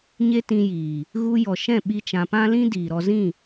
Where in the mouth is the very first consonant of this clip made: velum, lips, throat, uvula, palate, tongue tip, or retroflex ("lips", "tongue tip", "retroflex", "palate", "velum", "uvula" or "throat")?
palate